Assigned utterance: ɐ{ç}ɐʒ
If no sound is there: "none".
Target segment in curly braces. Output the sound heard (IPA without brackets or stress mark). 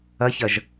ç